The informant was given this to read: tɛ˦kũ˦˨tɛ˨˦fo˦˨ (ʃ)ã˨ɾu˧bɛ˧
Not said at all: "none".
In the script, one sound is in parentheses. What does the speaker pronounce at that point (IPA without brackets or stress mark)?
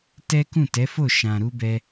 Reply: ʃ